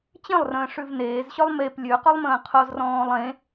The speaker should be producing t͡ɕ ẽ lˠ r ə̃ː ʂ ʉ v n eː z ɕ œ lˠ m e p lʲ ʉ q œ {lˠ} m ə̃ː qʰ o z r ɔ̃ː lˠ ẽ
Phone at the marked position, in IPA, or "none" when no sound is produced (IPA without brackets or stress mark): lˠ